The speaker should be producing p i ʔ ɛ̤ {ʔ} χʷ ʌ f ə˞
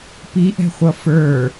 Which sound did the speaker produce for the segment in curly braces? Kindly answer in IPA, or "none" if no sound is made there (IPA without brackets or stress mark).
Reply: none